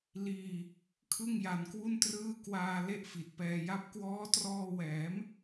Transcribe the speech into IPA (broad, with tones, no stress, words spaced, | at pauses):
liː˧ | kʰɯ˥˩ŋja˧nkwu˥˩ntrɯː˥˩ kwaː˧ le˥˩ʔfi˨˩t̚pɛː˧ja˥˩p̚ kwɔː˦˥trɔː˧ wɛː˩˦m